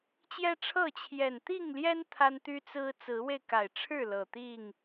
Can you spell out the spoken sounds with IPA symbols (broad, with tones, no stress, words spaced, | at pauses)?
t͡ɕjɛ˦ʈ͡ʂʰɤ˥˨ t͡ɕʰjɛ˨˩nt̪i˥˨ŋljɛ˦n t̪ʰa˦nt̪y˦t͡sɹ̩˦ t͡sɹ̩˨˦we˧ɪ̯ka˨˩ɪ̯ʈ͡ʂʰɻ̩˥˨ lɤ˨˩t̪i˥˨ŋ